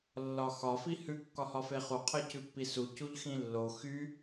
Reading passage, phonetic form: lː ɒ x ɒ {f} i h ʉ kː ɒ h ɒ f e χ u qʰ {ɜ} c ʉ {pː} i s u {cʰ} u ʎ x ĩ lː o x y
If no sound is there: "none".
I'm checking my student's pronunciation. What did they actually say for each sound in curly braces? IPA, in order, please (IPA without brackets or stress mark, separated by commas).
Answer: f, ɜ, pː, c